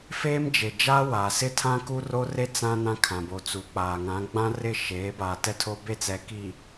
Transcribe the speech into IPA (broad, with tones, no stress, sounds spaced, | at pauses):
f eː˦ m d͡ʒ e˨ d͡ʒ aː˦ w aː˨ s ɪ˦ tʰ ã˦ k u˦ r o˦ r e˦ t͡s ã˦ n ã˦ kʰ ã˨ b o˨ t͡s uː˨ k͡p aː˨ ŋ ã˨˦ ɡ͡b ã˦ r ɪ˦˨ ʃ eː˨˦ b aː˨ t ɛ˦ tʰ o˦ b e˦˨ t͡s ɛ˨ k iː˨